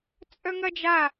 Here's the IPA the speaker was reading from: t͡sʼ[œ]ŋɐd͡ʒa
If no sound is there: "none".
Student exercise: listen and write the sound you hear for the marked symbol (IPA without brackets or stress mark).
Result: œ